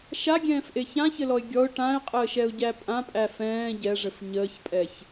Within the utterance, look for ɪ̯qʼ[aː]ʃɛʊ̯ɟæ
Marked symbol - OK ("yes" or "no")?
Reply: no